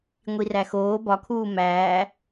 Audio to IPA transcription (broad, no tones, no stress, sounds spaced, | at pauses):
ŋʷ i r æ x oː b ɒ kʰ uː m æː